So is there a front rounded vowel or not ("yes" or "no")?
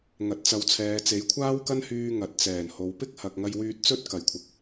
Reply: yes